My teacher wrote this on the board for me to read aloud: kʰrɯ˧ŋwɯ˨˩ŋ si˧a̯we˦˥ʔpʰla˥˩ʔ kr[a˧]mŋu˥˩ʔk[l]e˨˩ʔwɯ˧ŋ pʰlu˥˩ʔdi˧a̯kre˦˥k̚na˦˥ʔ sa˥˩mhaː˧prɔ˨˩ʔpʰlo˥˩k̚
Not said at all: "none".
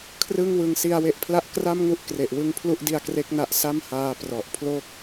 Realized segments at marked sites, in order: a˥˩, r

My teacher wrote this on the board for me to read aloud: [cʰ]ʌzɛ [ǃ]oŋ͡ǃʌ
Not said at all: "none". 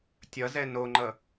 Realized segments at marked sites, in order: tʲ, n

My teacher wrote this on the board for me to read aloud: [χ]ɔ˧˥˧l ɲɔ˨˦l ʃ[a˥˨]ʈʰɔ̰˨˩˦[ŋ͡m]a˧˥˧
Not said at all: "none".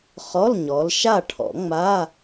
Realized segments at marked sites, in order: χ, a˥˨, ŋ͡m

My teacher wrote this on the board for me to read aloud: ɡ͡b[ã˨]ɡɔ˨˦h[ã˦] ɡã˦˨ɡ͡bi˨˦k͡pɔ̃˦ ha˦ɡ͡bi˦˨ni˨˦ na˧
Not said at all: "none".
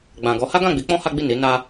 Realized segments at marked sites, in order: ã˨, a˦

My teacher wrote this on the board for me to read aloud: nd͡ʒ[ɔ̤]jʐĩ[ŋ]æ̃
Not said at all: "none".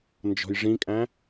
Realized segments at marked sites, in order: ɔ̤, kʼ

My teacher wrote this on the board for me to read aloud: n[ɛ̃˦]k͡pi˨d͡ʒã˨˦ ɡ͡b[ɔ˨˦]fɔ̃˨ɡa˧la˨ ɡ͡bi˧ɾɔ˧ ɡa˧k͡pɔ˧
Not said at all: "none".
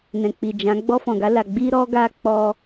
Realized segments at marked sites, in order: ɛ̃˨, ɔ˧

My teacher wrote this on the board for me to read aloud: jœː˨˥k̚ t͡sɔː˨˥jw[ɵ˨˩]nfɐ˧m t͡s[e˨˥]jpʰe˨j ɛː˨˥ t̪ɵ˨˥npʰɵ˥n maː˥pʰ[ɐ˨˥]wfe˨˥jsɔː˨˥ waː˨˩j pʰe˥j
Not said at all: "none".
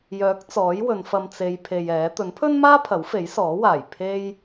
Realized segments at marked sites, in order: ɵ˨˧, e˨˧, ɐ˨˥

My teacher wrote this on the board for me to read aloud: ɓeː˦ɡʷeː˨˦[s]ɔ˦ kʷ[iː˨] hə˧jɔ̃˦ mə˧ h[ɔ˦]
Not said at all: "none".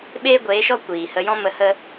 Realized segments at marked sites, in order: ʃ, iː˨, ə˦

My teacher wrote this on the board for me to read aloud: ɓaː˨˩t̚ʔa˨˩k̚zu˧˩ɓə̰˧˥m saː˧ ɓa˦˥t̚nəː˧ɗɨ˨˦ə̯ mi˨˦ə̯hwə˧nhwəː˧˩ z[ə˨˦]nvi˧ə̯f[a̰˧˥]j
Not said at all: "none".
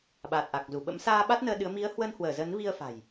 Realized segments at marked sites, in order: ə˨˦, a̤˨˩

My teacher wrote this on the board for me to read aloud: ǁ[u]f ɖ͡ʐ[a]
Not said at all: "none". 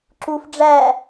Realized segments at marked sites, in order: u, æ

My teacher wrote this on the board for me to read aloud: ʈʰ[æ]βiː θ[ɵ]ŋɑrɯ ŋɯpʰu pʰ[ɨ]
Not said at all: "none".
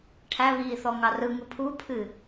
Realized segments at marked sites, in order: æ, ɔ, ɨ

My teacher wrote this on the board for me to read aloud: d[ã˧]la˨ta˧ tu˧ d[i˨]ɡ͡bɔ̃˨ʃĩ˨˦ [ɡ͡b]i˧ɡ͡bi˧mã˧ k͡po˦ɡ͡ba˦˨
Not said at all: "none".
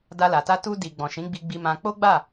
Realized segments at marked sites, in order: a˧, i˨, ɡ͡b

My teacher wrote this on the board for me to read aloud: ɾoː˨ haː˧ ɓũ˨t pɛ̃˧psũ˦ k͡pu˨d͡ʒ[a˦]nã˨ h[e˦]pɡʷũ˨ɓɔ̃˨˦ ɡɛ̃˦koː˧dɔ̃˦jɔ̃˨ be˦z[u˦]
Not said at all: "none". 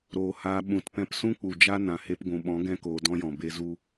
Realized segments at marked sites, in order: a˦, e˧, u˦

